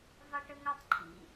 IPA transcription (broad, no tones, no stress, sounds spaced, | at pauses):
v ɑ ʈ ə ŋ a tˤ ǃʰ ḭ